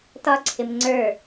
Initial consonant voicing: voiceless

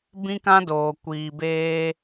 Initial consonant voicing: voiced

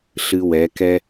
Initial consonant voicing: voiceless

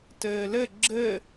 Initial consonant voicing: voiceless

